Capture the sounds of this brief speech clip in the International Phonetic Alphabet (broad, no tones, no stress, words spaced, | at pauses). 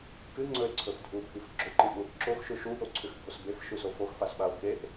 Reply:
kɨŋ͡ǀɵe̯ǀʰɵf dʱubʱif ɡ͡ǁoǃiʔwuʔ ǁoxʃʉ ʃuʔoǀʰʉxbʱos befʃʉso foxfasɓao̯ keʔ